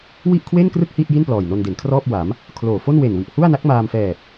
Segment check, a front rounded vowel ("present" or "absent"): absent